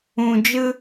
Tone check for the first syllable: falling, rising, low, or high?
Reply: low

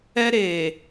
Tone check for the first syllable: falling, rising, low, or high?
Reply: high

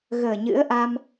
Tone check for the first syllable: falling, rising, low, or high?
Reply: low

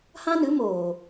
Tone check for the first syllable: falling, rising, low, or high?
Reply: high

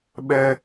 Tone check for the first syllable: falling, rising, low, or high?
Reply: high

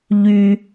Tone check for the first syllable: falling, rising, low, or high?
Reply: low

